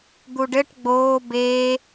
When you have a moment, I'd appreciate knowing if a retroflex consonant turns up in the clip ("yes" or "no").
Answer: yes